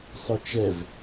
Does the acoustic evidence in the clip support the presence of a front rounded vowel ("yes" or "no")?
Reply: yes